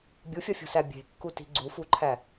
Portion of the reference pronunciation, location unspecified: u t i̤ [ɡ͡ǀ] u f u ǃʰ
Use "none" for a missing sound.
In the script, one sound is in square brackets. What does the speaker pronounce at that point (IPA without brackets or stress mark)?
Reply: ɡ͡ǀ